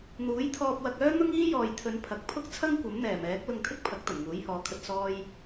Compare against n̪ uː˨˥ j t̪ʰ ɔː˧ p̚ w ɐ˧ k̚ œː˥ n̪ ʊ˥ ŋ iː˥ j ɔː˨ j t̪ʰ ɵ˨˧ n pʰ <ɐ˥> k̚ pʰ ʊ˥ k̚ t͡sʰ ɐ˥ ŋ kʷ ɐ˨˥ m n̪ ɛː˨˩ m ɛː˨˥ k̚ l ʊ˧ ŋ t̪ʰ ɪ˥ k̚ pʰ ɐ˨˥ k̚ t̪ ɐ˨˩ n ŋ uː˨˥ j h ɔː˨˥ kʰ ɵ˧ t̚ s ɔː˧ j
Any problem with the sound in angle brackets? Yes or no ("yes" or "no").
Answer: yes